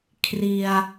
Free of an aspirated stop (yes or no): no